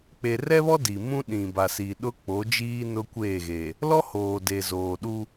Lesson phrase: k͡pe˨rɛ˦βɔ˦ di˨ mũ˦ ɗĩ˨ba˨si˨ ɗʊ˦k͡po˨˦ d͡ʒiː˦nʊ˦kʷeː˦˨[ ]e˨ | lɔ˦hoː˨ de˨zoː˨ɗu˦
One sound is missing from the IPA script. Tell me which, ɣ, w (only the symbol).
ɣ